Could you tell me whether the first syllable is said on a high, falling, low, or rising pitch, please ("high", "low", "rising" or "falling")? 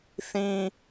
low